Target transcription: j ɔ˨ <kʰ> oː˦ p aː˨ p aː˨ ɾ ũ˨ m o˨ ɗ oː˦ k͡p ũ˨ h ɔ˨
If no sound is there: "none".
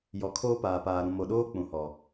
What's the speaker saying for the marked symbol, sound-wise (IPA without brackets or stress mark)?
kʰ